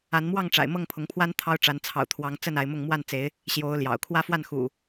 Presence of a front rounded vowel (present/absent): absent